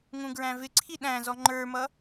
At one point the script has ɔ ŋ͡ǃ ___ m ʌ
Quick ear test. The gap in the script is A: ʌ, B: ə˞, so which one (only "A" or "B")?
B